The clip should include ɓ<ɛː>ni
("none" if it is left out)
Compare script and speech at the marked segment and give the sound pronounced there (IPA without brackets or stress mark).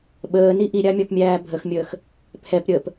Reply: əː